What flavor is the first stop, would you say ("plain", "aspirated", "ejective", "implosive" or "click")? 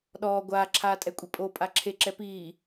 implosive